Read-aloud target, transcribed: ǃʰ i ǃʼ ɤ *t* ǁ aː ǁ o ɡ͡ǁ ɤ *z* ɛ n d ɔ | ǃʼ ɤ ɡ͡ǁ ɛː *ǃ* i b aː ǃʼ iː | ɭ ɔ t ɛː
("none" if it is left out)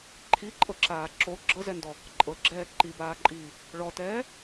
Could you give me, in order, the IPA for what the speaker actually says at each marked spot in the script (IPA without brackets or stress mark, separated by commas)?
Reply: none, z, ǃ